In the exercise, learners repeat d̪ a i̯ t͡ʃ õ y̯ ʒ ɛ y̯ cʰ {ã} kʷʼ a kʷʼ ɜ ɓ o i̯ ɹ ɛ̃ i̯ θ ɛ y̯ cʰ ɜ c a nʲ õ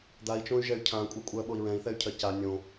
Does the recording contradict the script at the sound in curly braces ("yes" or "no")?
no